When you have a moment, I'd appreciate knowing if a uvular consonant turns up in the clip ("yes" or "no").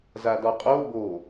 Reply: yes